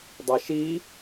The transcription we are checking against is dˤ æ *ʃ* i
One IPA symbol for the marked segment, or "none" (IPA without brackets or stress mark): ʃ